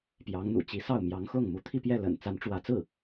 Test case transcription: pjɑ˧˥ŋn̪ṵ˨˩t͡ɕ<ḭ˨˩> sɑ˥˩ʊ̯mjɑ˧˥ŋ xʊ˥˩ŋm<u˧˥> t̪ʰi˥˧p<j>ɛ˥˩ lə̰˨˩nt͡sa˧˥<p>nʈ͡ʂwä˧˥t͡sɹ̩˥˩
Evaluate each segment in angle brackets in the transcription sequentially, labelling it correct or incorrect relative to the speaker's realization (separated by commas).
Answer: incorrect, correct, correct, incorrect